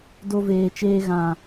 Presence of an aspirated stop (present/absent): absent